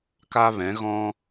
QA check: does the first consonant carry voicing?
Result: no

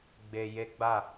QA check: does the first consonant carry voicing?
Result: yes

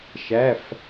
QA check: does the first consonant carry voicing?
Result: no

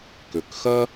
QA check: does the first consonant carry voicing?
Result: no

